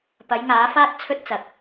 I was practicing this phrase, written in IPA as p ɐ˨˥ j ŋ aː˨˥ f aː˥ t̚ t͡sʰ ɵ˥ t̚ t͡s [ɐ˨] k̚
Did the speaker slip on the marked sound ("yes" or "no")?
no